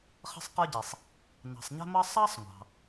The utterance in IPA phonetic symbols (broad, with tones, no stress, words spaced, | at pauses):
χə̤˥sˤqə˞˥ɟi˩sˤ | nɑ̤˩sˤɲɛ̤˥mʌ˥ sˤɑ˥sˤŋʷɑ̤˩